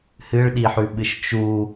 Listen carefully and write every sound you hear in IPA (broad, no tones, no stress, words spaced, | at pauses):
hɨɭɗiħʉɓɨʃ t͡ʃu